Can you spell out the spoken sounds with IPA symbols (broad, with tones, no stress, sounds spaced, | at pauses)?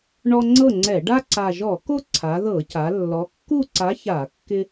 ɳ ɔ˦ ŋ͡ǀ ɤ˥˨ ŋ͡ǀ ɛ˧˩˧ ɖ a˦ ǀ a˨˩ ʒ ɔ˧˩˧ k o˦ ǀʰ a˩˧ ð ɤ˧˩˧ c a˩˧ lː ɔ˩˧ kː u˥˨ ǀ a˨˥ ç a˧˩˧ kː ɪ˦